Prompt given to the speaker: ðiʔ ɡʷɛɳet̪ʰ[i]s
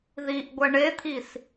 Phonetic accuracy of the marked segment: correct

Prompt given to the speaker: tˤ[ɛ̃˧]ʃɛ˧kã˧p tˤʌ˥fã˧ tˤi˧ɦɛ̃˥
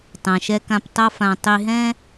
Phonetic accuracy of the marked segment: incorrect: ɛ̃˩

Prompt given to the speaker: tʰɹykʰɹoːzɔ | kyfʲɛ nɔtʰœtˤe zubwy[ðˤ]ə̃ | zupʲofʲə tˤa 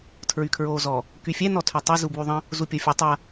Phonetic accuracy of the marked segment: correct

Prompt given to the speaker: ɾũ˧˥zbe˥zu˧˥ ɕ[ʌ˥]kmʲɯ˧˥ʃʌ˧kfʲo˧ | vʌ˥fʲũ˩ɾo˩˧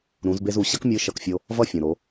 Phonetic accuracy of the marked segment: correct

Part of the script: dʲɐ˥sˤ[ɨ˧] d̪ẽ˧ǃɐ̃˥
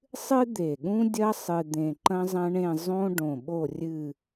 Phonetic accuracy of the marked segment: correct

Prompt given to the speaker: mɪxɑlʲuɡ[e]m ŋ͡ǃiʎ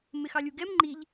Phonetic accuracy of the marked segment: incorrect: ɛ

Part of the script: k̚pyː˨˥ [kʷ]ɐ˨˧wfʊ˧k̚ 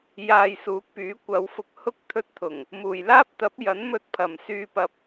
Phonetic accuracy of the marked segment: correct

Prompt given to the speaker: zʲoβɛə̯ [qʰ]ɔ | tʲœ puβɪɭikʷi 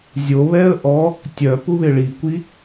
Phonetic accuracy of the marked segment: incorrect: ʔ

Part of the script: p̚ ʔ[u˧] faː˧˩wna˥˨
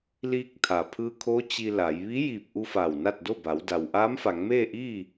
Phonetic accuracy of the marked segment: correct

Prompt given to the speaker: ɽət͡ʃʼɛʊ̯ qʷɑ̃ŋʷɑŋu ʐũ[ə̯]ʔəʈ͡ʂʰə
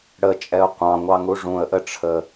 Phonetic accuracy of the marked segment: correct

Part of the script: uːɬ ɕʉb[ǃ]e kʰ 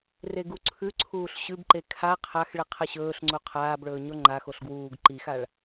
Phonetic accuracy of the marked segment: correct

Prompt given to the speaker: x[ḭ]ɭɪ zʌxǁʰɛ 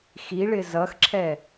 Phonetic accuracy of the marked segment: incorrect: i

